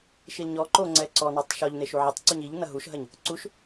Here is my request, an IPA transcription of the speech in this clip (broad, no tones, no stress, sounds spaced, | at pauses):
ʃ i l ɲ ɔ ǃ o ŋ͡ǀ ɛ ǀ ɔ n ɔ tˤ ʃ ɔ ʎ n e ʃ u ʕ ɐ tˤ ǀ u ɲ i ʎ n ɐ ɦ u ʃ ɦ ɐ ɲ | ǀ u ʃ